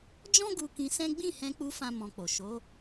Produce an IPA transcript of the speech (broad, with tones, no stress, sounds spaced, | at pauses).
d͡ʒ ɔ̃˦ ɡ u˧ k ĩ˧ s ɛ̃˦ ɡ͡b ĩ˦˨ h ɛ̃˧ k͡p u˧ f ã˦ m ɔ̃˧ k͡p o˨ ʃ o˨˦